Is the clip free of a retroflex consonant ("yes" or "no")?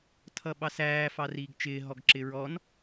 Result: yes